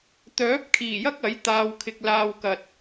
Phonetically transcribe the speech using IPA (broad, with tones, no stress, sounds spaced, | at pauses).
t̪ œː˨˥ p̚ kʰ iː˨˩ j ɐ˥ k̚ ɐ˨˥ j t̪ aː˨ w kʰ ɪ˨ k̚ l aː˧ w k ɐ˨ t̚